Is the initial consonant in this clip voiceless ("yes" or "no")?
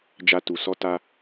no